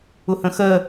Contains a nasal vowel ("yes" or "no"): yes